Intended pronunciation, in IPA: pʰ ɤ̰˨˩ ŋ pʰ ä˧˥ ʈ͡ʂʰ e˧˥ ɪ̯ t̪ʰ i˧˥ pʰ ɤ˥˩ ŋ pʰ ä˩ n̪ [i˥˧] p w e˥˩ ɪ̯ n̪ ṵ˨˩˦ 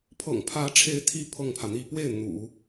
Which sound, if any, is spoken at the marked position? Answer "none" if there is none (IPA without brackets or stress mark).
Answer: i˥˧